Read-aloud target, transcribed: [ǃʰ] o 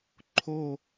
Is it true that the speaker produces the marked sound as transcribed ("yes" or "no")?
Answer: yes